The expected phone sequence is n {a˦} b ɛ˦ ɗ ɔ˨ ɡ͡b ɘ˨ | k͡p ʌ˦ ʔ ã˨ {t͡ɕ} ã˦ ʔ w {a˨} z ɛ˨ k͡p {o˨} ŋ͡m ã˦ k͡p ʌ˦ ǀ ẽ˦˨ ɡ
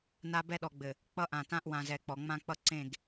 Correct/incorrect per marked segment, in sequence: correct, incorrect, incorrect, incorrect

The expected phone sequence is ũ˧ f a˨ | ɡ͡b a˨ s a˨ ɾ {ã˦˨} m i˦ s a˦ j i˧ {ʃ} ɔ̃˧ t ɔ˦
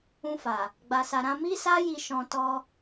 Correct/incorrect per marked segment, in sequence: incorrect, correct

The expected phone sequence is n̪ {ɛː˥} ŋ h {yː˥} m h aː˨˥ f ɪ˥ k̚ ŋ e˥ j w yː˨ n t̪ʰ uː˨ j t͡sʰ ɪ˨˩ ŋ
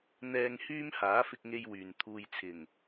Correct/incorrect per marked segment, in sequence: incorrect, correct

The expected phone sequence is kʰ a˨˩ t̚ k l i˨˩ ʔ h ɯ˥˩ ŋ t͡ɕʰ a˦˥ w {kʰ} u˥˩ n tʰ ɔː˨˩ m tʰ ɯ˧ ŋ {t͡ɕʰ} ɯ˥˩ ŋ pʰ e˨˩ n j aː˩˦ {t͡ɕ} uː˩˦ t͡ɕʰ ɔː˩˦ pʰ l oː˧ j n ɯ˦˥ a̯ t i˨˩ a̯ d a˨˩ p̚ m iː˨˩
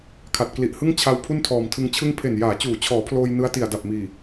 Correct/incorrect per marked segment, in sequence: incorrect, correct, correct

